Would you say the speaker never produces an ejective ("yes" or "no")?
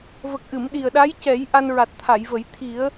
yes